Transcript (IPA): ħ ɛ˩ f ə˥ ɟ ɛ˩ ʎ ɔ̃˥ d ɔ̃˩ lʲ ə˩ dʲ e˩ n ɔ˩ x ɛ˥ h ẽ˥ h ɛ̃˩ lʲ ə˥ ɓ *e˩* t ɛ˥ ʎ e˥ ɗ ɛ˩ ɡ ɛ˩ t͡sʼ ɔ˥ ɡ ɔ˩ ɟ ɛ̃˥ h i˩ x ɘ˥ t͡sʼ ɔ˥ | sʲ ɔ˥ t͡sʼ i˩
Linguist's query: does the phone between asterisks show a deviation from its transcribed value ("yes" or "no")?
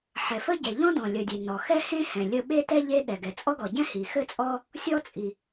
yes